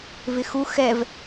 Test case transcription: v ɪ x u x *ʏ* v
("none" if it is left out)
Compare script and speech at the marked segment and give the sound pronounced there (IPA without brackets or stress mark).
ɛ